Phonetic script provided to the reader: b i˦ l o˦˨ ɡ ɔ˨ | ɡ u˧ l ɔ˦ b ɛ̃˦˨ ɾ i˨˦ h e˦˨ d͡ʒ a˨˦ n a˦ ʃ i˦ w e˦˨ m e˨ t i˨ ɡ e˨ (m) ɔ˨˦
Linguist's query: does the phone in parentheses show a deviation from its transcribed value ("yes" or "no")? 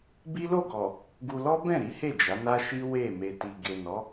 yes